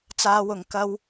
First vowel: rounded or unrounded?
unrounded